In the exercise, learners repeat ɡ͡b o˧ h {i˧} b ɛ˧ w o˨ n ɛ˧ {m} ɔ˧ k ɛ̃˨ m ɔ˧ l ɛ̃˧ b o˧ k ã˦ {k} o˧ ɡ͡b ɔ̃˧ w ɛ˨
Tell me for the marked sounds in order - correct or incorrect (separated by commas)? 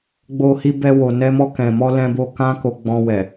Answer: correct, correct, correct